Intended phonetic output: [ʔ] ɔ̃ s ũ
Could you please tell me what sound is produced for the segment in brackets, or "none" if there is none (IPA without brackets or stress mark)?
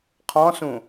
qʰ